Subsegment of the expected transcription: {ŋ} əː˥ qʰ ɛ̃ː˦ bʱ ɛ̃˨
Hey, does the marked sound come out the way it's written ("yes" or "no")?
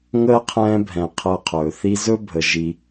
yes